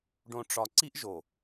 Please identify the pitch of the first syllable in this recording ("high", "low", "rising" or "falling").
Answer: low